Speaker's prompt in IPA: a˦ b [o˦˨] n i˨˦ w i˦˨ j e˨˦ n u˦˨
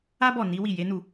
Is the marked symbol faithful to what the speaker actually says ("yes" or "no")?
no